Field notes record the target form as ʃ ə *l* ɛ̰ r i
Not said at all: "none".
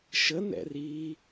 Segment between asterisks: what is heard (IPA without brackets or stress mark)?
n